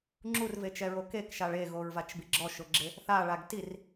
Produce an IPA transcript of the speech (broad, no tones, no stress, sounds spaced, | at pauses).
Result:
ŋ͡ǁ u r v e t͡ʃ ɛ ɹ o k e k ʃ a ɭ e ɣ o ɹ v a t͡ʃ b i ɡ͡ǁ ɔ ʃ ʊ ɡ͡ǁ ɪ | θ a ɭ a ɡ t i r